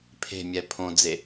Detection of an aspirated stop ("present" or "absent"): present